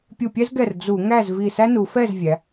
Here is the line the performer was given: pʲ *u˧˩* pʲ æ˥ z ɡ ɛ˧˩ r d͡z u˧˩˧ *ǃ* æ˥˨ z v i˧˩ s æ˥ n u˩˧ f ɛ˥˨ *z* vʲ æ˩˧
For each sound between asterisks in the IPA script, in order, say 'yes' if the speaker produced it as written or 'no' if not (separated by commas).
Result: yes, no, yes